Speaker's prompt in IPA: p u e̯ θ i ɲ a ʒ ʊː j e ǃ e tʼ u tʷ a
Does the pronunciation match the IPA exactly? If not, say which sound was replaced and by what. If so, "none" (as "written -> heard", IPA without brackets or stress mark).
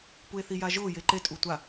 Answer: ɲ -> j